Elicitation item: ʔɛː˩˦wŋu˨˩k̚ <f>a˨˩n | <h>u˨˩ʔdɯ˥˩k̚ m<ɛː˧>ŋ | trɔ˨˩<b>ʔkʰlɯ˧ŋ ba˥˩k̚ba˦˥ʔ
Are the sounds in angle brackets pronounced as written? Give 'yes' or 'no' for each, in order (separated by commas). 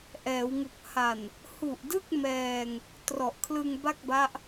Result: no, yes, yes, no